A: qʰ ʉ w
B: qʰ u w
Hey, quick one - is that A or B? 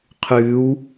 A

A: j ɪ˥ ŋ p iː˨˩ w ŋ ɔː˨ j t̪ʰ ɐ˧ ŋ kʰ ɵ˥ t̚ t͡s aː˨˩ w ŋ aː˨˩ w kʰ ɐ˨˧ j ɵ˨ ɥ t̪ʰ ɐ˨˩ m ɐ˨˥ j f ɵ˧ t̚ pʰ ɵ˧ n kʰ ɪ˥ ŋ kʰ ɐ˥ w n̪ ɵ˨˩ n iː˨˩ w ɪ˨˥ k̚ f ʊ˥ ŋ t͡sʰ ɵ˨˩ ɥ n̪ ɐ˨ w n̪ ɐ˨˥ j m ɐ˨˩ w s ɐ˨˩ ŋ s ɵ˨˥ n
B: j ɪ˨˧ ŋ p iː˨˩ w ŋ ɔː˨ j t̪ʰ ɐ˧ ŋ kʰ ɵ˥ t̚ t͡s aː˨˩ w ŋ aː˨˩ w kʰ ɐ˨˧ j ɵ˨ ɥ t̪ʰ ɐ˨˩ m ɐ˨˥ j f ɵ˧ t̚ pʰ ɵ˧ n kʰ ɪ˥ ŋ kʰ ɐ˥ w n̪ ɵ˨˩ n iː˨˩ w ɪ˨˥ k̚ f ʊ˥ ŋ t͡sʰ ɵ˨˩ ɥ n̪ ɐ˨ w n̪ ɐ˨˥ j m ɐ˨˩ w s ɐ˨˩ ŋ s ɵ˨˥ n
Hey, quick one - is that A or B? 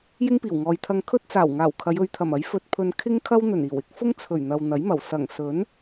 A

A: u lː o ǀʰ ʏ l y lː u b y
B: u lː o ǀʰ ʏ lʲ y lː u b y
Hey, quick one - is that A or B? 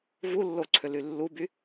A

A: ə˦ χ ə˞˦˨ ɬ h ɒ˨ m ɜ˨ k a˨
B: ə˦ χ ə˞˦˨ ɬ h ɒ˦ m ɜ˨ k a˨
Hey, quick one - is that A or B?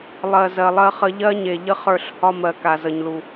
B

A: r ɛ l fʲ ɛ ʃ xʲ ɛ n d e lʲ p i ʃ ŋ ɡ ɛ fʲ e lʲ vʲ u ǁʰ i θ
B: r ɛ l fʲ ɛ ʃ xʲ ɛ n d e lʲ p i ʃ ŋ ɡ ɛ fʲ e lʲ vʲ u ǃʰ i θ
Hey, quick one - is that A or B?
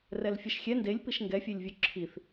A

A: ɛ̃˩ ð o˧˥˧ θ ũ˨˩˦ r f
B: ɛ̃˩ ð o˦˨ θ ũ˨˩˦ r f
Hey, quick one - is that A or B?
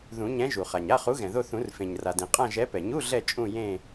B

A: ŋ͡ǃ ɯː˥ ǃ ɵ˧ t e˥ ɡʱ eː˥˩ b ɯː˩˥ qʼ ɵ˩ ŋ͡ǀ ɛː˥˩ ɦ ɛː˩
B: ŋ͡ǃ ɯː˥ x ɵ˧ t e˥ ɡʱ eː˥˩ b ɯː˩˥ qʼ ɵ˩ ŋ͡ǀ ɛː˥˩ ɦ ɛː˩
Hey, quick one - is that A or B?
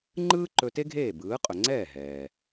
A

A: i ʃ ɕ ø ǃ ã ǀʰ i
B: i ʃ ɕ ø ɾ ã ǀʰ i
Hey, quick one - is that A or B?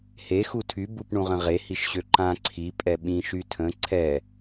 A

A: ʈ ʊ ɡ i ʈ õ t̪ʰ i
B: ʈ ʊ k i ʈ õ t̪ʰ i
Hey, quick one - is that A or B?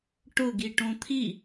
A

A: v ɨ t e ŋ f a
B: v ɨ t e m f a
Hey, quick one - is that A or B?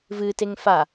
A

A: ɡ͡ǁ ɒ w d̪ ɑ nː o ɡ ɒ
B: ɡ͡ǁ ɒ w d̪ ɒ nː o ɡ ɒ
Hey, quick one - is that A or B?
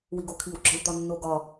B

